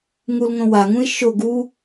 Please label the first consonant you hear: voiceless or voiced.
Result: voiced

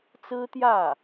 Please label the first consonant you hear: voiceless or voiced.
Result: voiceless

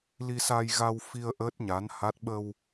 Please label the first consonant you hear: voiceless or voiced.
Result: voiced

